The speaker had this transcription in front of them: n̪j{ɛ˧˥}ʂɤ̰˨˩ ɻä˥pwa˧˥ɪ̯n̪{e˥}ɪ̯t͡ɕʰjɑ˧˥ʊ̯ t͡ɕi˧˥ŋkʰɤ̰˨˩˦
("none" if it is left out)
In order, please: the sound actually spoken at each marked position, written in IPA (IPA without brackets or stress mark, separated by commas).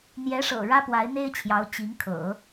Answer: ɛ˧˥, e˥